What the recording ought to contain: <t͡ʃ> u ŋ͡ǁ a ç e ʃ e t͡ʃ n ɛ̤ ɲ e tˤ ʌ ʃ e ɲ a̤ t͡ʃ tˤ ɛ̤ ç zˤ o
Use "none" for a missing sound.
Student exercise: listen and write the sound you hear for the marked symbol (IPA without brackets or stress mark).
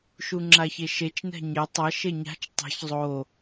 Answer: ʃ